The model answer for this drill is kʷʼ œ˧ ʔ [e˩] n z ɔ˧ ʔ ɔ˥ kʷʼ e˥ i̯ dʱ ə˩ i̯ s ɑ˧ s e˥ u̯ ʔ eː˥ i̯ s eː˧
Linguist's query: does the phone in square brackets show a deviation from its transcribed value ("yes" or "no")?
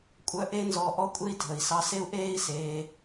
yes